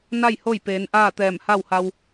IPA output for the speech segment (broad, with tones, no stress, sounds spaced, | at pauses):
n a˥˨ j h o˥˨ j p eː˩˧ n ʔ aː˥˨ t̪ ɛː˧˩ m h a˥˨ w h a˧ w